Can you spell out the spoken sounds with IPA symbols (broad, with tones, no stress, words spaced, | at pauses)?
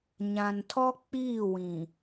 ɲã˨ntʰɔ˦ k͡piː˦˨wĩ˨